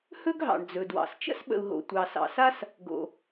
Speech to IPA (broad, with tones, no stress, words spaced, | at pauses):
hɵ˥ɡɦɑ̰˩ɳd͡zɵ˩dwɑ̰˩s t͡ʃə̰˥sɓə̰˩u̯ɦo̰˩ tʷɑ˩sɑ̰˩sa˥s | ɡo̰˩